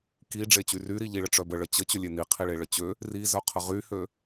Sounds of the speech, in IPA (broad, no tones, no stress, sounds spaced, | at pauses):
k i ɖ͡ʐ e t͡ɕ y r y ɾ i ʎ i ɭ ə ʈ͡ʂ œ b ə ɭ ə t͡ɕ ə t͡ɕ ø lʲ e n i qʰ i ɭ e ɭ ə t͡ɕ ø | r i z œ qʰ ə ʁ y h ø